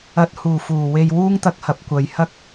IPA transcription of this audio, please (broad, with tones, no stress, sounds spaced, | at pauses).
ɐ˨˥ t̚ h uː˨˩ f uː˨˩ w e˧ j w uː˥ ŋ t̪ ɐ˧ k̚ h ɐ˨˥ p̚ kʷ ɐ˨ j h ɐ˥ k̚